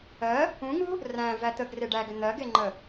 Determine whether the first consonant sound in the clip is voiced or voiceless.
voiced